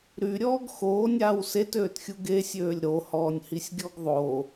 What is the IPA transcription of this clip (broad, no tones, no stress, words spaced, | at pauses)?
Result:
ɾyɾʲɔːɡ xoːnʲaːw setøːtxʲu ɡesʲøːlʲ ɾohɔːnʲhisʲɡʲɔɡ ðˤo